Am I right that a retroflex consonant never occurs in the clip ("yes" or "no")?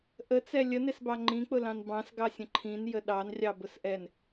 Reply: yes